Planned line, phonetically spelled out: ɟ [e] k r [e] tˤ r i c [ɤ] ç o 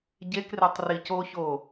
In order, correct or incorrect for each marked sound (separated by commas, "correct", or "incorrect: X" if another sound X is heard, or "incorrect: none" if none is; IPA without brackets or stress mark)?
correct, correct, incorrect: o